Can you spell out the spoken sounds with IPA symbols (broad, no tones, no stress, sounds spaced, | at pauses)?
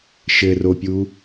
ʃ ɘ r o pʲ u